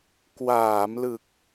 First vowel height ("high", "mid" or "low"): low